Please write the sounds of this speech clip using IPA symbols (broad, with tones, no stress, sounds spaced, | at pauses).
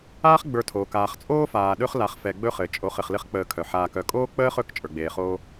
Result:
aː˦ χ ɡ͡b ə˞˨ tʰ oː˩ k aː˨ χ t͡sʼ oː˥ f aː˨ ɗ ɵ˦ χ l a˨ χ f ɛ˨ ɡ͡b ɵ˦ χ ɘ˩ t͡ʃʼ o˨ χ ɘ˨ χ l ɘ˦ χ k͡p əː˨ kʰ œ˩ ħ aː˨ k œ˨ kʼ oː˥ k͡p əː˥ χ ɵ˦ k t͡ʃʼ ə˞˩ ɡ͡b eː˨ χ oː˦